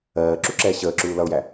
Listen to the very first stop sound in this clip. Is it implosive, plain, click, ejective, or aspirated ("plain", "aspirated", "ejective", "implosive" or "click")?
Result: click